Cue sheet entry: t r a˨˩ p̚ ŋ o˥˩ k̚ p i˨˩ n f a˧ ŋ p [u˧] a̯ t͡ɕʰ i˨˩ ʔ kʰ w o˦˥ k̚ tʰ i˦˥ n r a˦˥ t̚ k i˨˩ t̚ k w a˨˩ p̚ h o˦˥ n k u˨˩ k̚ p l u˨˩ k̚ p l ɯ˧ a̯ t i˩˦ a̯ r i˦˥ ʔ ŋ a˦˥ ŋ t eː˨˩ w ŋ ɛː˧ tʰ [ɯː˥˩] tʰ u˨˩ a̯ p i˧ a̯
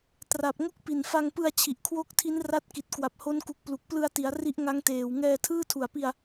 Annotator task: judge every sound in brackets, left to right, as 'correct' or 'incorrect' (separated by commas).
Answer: incorrect, correct